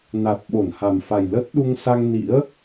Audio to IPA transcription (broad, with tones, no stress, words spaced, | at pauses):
na˨˩t̚ɓo˧˩n ha˨˩mfa˨˩j lə˦˥t̚ɗu˧ŋ sa˧ŋnḭ˧˥ə̯